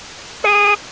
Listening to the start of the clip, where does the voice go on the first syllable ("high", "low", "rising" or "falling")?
high